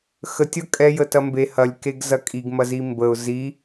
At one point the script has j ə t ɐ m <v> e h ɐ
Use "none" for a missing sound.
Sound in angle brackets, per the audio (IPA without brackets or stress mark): b